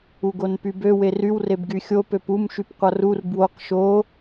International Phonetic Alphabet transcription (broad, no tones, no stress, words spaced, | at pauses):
uɡonpybø weryw rebɡyxʲo pøpum ʃypqʷʌrur bwoq ʃo